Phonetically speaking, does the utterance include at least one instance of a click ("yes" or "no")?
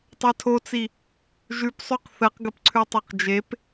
yes